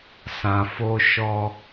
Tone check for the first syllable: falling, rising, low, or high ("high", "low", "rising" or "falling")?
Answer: low